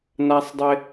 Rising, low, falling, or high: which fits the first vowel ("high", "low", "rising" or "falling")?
low